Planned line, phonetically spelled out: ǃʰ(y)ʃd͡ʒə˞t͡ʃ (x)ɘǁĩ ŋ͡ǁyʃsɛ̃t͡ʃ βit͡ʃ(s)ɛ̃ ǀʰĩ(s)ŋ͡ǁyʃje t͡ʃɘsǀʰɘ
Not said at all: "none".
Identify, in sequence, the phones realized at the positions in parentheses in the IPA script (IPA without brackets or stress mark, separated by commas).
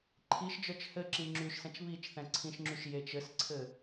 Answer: i, h, θ, ʃ